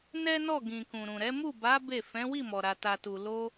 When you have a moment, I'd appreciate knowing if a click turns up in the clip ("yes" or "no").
no